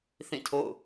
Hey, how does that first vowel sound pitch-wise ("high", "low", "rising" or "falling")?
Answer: falling